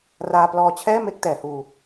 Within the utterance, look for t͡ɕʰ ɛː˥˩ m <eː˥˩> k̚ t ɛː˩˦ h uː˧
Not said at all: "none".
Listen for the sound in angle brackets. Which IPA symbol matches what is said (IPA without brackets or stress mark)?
e˥˩